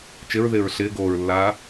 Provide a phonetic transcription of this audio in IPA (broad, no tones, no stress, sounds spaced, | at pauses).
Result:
t͡ʃ ɪ ɹ ð ɪː ɹ ɬ ɪː ɡ oː ɹ lː aː